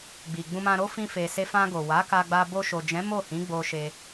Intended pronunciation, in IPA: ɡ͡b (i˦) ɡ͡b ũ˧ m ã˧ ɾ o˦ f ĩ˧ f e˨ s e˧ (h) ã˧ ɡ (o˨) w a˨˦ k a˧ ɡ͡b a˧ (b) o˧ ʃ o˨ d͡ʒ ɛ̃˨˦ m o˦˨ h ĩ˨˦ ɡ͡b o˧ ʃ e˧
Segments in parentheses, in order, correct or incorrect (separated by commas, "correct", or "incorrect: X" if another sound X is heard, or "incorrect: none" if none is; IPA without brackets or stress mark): incorrect: i˨, incorrect: f, correct, correct